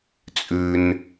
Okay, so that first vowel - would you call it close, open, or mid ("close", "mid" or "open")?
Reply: close